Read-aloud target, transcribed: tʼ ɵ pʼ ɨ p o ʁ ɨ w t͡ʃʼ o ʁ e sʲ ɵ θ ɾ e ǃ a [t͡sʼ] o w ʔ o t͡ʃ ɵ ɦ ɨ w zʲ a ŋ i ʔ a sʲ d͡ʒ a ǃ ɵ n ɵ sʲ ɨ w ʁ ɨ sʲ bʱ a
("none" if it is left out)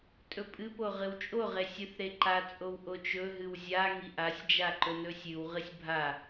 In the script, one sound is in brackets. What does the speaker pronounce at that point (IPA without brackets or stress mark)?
t͡sʼ